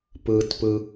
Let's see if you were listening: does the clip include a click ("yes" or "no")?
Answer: no